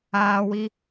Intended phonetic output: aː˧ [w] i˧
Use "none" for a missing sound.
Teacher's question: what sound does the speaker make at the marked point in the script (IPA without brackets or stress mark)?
w